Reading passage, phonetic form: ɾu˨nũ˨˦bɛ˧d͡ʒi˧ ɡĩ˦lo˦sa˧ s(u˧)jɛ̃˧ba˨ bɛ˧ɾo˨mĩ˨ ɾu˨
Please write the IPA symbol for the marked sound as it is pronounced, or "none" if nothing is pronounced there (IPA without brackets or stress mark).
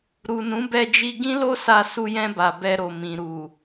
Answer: u˧